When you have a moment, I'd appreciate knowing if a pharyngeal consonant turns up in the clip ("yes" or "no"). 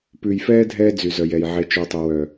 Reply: yes